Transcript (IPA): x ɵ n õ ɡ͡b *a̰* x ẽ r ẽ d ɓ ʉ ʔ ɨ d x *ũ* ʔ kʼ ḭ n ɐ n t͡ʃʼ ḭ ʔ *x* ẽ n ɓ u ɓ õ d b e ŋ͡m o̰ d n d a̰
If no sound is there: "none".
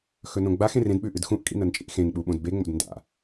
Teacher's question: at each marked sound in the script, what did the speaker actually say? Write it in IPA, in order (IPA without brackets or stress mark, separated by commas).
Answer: a, ũ, x